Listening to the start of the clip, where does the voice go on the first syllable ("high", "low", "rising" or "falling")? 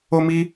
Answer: high